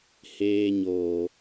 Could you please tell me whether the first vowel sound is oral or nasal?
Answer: oral